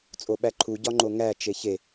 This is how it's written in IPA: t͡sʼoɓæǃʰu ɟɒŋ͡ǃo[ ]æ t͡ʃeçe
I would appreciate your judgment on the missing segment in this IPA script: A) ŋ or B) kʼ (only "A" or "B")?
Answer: A